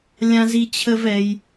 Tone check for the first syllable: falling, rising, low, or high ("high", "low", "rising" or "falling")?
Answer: high